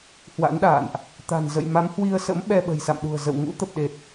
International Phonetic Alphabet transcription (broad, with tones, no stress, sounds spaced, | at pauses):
h w a̰˧˥ n ɗ a̰ː˧˨ n ʔ | t̪ a̤˨˩ n z ə̰˧˨ j m a˨˦ m h w i˧ ə̯ s ə̰˧˥ m ɓ ɛ˧ ɓ ə̤˨˩ j s a̰˧˨ m ɗ ṳ˨˩ ə̯ z ə̰˧˨ w ŋ ṵ˧˥ t̪ ə˨˩ p̚ ɗ e˨˩ t̚